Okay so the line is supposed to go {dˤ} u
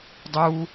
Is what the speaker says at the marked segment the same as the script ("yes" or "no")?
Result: yes